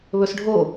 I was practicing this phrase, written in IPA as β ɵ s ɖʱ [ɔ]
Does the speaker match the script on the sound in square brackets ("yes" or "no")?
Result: no